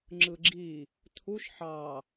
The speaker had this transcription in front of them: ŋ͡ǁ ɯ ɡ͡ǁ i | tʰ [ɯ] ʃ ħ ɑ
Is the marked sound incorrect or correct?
incorrect